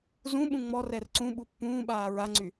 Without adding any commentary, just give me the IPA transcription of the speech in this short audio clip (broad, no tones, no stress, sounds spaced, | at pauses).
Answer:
z ũ ɓ ũ ŋ͡m ɔ r ɛ r ǀ ũ ɓ u pː ũː ɓ aː ɹ a ŋ͡ǀ y